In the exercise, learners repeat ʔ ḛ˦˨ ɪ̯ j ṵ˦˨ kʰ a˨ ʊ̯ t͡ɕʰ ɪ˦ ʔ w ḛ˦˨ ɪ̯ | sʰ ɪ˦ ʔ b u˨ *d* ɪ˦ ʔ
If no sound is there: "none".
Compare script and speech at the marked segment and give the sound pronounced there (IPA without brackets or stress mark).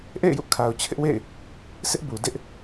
d